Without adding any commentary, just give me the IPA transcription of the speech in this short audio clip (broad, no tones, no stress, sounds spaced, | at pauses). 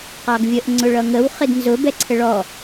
q ɑ ɡ vʲ ə ʔ ŋ͡ǀ ʊ ɭ ʌ ŋ ə w χ ɪ d n z ʊ b ɛ ǀʰ ə ɭ ɔ